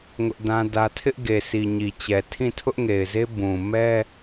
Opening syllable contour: high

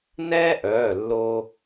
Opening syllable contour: high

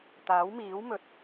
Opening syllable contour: rising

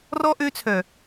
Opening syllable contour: high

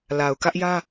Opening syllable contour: low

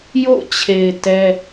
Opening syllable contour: falling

